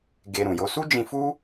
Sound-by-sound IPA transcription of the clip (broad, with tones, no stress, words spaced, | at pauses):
ɡe˧ɾũ˨jo˧ su˦d͡ʒĩ˧fu˦